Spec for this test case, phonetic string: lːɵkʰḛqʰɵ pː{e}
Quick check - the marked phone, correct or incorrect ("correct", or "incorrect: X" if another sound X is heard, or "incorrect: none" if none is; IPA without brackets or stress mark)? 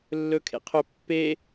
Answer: correct